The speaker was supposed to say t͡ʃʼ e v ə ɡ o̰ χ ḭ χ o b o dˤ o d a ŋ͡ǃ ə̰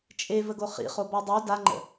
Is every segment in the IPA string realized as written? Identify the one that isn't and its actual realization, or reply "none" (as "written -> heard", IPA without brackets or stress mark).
o̰ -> o